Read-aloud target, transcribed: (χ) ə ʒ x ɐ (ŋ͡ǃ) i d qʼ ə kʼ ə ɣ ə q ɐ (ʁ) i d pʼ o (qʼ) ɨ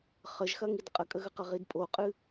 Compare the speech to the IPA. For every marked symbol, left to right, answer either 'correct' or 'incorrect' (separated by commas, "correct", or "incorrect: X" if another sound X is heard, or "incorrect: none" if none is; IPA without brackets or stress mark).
correct, incorrect: ŋ, correct, correct